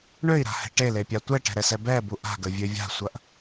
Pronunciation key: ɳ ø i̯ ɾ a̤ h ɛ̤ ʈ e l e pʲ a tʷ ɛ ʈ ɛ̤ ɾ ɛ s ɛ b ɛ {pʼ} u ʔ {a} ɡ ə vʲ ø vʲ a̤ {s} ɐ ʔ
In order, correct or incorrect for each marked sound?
incorrect, incorrect, incorrect

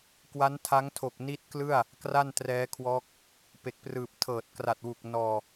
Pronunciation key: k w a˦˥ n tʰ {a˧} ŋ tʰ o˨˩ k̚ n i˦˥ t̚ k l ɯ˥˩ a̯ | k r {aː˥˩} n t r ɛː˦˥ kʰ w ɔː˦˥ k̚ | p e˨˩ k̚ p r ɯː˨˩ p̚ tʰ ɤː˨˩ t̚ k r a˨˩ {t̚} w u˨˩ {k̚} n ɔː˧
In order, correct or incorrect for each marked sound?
incorrect, incorrect, correct, correct

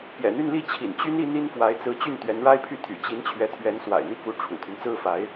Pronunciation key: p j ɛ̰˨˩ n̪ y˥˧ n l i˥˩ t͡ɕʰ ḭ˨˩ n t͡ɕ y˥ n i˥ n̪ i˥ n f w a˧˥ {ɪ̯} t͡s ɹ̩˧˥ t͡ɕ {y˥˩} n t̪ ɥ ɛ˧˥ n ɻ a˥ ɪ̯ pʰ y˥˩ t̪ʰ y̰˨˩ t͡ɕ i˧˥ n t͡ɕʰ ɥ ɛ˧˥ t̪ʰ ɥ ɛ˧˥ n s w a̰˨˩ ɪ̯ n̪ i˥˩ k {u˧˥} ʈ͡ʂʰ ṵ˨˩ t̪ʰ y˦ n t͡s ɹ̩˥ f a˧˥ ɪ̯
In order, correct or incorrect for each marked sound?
correct, correct, correct

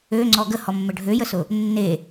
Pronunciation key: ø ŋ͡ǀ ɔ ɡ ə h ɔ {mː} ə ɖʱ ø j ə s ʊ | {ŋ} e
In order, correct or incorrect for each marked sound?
correct, incorrect

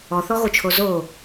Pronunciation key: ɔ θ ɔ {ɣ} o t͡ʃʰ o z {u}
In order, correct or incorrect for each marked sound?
correct, incorrect

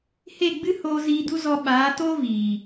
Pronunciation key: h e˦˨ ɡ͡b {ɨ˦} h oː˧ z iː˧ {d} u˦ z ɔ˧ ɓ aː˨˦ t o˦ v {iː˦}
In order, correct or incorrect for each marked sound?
correct, correct, incorrect

